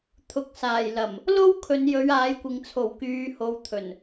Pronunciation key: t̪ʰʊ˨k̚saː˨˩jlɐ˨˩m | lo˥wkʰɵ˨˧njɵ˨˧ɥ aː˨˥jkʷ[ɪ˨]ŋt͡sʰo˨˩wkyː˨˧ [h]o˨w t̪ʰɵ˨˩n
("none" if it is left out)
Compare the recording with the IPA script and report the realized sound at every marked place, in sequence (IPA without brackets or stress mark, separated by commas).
ɪ˨, h